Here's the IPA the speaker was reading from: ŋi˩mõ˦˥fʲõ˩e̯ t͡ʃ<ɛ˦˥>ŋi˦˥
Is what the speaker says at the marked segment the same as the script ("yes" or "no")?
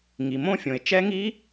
yes